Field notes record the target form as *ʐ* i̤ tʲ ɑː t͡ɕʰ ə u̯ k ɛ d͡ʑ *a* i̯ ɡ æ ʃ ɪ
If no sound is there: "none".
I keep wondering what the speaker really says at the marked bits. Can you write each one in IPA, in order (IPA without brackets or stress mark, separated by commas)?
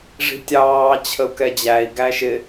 ʐ, æ